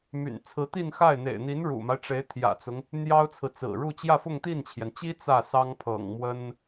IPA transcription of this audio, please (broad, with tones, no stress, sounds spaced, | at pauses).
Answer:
m y̰˨˩ n t͡sʰ ɹ̩˧˥ t̪ i˥˧ n x a˥˩ ɪ̯ n̪ ḛ˨˩ ɪ̯ n̪ i˧˥ n ɻ ṵ˨˩ m a˦ ɪ̯ ʈ͡ʂ e˧˥ ɪ̯ t̪ʰ j ä̰˨˩ t͡s ʊ˦ ŋ | n̪ j ɑ˥ ʊ̯ t͡sʰ ɹ̩˨ t͡s ɹ̩˨˩ ɻ u˥˧ t͡ɕ j ä˥˧ f ʊ˥˧ ŋ t̪ i˥˩ n t͡ɕʰ j ɛ˩ n t͡ɕ i˥ t͡s ä˥˩ s ɑ˥ ŋ pʰ ɤ̰˨˩ ŋ m w ə˥ n